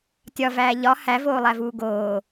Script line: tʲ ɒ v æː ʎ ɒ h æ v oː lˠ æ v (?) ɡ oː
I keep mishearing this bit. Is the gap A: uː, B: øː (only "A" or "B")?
A